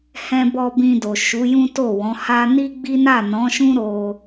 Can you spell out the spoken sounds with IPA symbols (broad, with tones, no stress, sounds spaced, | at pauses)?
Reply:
h ɛ̃˧ b ɔ˧ b ĩ˧ d o˨ ʃ u˨˦ j ũ˦ t o˦˨ w ɔ̃˨˦ h a˦ n i˦ ɡ͡b i˦ n a˦˨ n ɔ̃˨˦ ʃ ũ˦ ɾ o˧